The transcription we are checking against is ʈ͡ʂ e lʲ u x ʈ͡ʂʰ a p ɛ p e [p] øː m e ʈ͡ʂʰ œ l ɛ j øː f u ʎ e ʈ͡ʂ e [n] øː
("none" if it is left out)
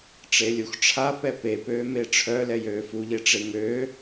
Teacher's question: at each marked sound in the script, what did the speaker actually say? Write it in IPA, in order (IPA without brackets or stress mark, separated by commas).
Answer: p, ŋ